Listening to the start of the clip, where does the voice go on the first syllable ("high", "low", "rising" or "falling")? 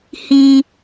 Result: high